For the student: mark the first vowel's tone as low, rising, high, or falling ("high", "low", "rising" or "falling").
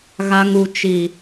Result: low